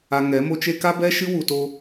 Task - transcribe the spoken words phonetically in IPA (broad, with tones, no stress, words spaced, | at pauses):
a˧ŋɛ˨˦mo˦t͡ʃe˦ ka˦bɛ˦ʃɨ˦ wu˧to˦